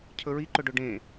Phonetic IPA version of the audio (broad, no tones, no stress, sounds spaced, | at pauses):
cʰ ɵ ɹ i ǃ ɵ ɖ ɵ ɖ ẽ